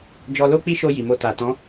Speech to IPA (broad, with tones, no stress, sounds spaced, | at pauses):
d͡ʒ ɔ˧ l o˦ k͡p i˦ ʃ o˧ j i˨ m o˧ t a˨ t ɔ̃˨˦